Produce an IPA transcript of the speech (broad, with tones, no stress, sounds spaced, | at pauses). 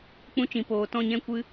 k͡p ũ˧ t͡ʃ ĩ˨ p oː˨ t ɔ̃˦˨ ɲ ɛ̃˦ kʷ ɨ˦